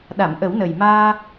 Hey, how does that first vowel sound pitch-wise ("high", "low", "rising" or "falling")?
low